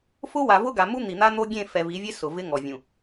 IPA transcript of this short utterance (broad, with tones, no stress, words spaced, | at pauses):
fʊ˦wa˨ vʊ˦ɡa˨mu˦ n̪i˨n̪a˦n̪o˦ɡʲẽ˦˨ fɛ˨ vi˨˦vʲe˦ sʊ˨vɪ˦ŋɔ˨ vʲũ˨